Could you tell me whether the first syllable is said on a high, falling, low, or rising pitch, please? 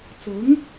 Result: rising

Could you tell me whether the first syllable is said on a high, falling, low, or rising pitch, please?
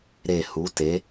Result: low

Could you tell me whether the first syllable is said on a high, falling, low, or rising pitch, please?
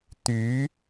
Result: rising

